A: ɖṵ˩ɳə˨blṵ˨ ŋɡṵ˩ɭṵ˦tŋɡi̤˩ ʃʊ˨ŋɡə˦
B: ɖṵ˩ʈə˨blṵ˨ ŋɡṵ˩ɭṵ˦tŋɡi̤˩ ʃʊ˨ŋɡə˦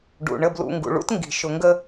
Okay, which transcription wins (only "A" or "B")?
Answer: A